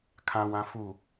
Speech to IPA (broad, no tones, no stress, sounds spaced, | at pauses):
kʰ ã w ã f u